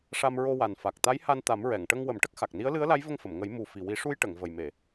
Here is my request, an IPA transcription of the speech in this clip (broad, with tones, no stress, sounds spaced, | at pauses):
ʂ a˧ m ɹ o˧ w a˨˩ n f a˨˩ k̚ t̪ a˧˥ j h a˧ n t̪ a˨˩˦ m ɹ ɛ˨˩˨ ŋ ʈ ə˧ ŋ w ə˨˩˦ m ʈ ə˦˥ k̚ x a˨˩ k̚ n i˧˥ ə̯ l ɨ˧˥ ə̯ l a˧˥ j v ə˧ ŋ f ə˨˩˨ m ŋ ə˨˩˦ j m u˨˩ f i˨˩ w i˨˩˦ ʂ u˧ j ʈ ə˨˩˨ ŋ v ə˨˩ j m e˨˩˨